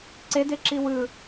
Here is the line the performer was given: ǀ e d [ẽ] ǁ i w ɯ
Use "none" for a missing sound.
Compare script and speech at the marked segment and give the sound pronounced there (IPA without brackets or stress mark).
e